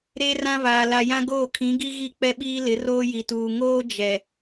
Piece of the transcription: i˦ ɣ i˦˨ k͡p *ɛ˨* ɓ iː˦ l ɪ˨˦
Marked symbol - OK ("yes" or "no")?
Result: no